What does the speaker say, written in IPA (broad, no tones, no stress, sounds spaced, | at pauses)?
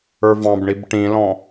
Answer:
ə˞ v ɑ̃ b ɳ i b ʈ ĩ l ɔ̃